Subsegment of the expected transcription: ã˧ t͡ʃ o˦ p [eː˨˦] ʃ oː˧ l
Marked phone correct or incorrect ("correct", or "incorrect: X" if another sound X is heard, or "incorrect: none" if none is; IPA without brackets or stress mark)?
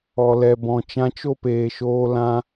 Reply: incorrect: eː˨